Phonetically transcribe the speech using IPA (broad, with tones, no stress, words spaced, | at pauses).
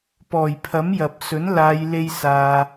pɔː˨˩j pʰɐ˨˥mjɐ˨p̚sɵ˨˥n laː˨˧jle˧j saː˧